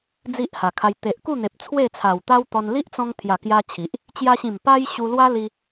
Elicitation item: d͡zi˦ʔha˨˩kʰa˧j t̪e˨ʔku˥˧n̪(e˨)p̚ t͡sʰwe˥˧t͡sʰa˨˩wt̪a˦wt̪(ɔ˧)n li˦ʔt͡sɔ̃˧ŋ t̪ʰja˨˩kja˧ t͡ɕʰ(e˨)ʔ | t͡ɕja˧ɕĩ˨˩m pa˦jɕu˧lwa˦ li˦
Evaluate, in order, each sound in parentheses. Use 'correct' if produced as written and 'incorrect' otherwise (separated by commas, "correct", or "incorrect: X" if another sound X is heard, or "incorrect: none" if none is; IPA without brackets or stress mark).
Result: correct, correct, incorrect: i˨